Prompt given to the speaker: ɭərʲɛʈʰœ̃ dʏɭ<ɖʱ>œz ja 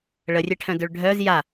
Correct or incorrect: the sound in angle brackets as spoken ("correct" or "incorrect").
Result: correct